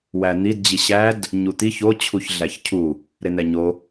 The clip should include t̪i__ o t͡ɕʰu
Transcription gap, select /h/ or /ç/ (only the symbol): ç